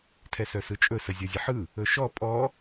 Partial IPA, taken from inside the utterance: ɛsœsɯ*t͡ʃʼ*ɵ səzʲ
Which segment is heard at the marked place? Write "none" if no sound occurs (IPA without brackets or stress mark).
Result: t͡ʃʼ